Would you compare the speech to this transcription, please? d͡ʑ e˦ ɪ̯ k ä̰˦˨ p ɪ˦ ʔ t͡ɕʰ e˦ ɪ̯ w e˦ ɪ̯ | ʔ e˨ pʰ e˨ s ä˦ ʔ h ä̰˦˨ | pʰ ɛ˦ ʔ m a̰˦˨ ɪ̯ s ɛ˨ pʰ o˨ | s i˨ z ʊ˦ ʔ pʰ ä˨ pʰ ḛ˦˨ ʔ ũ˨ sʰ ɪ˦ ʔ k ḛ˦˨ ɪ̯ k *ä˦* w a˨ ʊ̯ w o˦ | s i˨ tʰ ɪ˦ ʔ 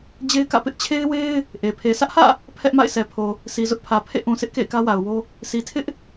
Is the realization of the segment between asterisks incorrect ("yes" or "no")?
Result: no